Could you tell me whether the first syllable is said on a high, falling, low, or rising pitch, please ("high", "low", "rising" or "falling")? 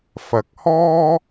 low